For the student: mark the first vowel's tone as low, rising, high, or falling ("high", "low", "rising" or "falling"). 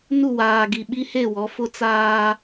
falling